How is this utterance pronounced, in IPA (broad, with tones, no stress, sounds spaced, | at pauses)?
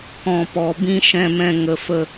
k ɔ̃˨ p ɔ˨ b ĩ˧ ʃ ɛ̃˧ m ɛ̃˧ ŋ ə˨ f ə˧